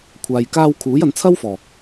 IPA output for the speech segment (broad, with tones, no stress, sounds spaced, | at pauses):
kʷʰ aː˨ j k aː˧ w kʰ uː˨˥ j ɐ˨˧ n t͡sʰ ɐ˥ w f ɔː˨˩